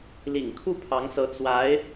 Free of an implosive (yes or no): yes